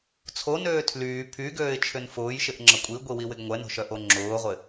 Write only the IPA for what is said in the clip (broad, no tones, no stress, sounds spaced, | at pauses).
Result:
t͡sʰ o n øː tʰ l yː pʰ y ɡ øː ɪ̯ t͡ʃʰ ʏ n f ʊː j ʃ ɪ ʔ ŋ͡ǁ ɐ kʷʼ i ɡʷ i w i w ɪ ɡ ŋʷ ɛ n o̤ ʃ œ ʔ o ŋ͡ǁ ʊː ʁʷ ɪ